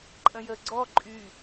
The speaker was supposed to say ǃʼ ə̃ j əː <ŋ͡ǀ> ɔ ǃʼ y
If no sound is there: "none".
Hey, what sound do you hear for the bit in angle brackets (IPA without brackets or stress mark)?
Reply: ɡ͡ǀ